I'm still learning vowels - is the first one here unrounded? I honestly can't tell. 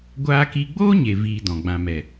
yes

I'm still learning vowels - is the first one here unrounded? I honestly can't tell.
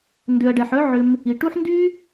no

